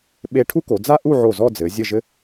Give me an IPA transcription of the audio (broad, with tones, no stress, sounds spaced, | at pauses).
ɓ e˧ ʈʰ u˥ k o˩˧ d͡z a˥ ʔ u˥˧ ʕ o˧˩ z ɔ˥˧ d͡z ɘ˩˧ zʲ ɘ˥˧ ʒ ɘ˥